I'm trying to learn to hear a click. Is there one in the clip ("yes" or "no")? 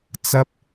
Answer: no